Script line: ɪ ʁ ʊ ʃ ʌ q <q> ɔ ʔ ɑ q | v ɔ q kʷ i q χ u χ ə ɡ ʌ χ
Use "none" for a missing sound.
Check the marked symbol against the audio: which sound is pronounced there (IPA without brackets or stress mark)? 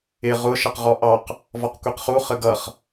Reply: ʁ